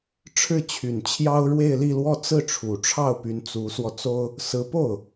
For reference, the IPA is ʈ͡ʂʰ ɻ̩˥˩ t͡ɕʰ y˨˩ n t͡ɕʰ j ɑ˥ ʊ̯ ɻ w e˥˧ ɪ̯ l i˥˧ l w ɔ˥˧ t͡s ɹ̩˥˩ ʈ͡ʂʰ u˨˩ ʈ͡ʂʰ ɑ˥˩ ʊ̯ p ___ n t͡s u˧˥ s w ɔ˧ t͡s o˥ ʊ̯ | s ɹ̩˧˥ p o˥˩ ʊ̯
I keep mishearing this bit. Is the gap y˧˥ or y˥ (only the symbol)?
y˧˥